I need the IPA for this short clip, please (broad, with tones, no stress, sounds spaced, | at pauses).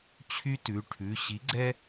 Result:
t͡ɕʰ y˦ t ʉ˩˧˩ ʈʰ ʉ˩˧˩ ɕ i˨˥ ɡ͡ǀ ɛ˦